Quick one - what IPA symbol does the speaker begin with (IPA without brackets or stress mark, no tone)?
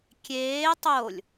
kʲ